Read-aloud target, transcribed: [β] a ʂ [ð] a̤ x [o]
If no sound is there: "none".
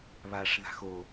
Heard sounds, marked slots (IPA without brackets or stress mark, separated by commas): β, ð, o